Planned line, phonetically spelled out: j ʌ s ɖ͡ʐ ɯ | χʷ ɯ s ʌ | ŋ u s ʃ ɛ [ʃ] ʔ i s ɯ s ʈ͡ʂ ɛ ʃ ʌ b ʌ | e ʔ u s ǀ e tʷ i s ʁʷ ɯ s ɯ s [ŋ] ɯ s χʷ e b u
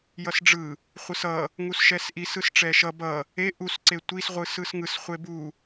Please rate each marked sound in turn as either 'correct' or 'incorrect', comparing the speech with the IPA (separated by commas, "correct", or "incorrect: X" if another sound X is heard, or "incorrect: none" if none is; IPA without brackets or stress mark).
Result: incorrect: s, correct